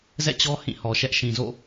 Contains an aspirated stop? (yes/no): no